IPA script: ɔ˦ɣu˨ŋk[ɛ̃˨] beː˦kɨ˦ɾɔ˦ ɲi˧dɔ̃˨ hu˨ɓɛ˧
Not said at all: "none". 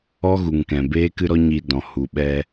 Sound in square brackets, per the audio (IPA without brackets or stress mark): ɛ̃˨